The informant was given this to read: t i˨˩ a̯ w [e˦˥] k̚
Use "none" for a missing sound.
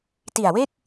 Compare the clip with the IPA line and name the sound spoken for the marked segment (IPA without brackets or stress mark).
e˥˩